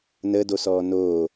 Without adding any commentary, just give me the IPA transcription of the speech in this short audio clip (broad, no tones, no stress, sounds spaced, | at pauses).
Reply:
n ə d o s ɔː n oː